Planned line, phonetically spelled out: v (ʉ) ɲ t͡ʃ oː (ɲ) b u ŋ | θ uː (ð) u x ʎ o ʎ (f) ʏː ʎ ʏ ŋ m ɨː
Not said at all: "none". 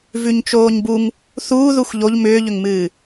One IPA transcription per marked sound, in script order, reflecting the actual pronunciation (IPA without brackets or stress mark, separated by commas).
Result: ʉ, ɲ, ð, m